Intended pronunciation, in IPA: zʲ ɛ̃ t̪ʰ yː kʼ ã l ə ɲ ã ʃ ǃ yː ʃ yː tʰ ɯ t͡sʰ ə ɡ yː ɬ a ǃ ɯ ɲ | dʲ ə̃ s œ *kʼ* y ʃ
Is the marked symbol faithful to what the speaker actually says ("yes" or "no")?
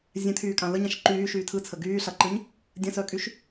yes